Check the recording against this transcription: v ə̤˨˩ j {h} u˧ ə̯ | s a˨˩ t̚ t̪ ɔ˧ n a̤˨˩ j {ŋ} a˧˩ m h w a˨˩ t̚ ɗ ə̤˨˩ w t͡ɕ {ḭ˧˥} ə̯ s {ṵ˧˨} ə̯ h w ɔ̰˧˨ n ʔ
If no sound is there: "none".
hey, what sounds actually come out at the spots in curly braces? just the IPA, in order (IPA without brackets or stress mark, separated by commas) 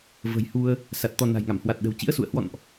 h, ŋ, ḭ˧˥, ṵ˧˨